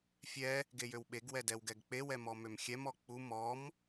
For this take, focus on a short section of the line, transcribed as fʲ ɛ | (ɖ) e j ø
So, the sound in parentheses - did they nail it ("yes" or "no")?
no